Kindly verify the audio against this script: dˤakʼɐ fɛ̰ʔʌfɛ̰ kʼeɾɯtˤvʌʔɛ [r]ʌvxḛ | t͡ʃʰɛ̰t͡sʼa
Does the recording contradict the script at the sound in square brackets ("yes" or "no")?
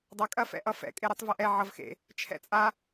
yes